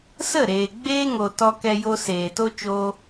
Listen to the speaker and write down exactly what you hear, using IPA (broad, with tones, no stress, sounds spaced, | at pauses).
s ə˦˨ ɾ eː˨ ɡ͡b eː˦ ŋ o˨ t ɔ˧ k ɛ˧ j o˧ s eː˨ t o˦ t͡ʃ oː˦